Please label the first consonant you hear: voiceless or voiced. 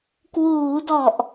voiceless